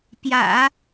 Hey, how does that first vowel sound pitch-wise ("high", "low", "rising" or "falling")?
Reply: low